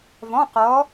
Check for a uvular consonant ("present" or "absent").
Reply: present